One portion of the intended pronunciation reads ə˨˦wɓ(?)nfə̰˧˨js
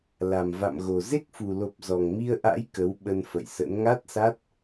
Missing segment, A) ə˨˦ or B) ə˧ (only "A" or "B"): B